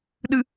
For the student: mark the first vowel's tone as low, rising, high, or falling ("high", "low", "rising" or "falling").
low